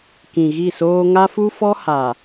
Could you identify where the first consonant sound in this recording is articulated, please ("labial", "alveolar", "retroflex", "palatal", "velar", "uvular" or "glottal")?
velar